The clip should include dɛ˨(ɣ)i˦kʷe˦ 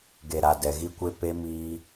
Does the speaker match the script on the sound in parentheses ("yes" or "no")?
yes